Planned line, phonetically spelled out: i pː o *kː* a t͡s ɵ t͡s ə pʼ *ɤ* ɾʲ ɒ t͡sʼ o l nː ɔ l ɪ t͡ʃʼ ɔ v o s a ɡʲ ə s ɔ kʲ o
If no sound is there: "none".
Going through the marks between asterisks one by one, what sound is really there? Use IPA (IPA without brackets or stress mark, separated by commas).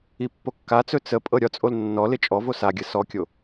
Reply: kː, ɤ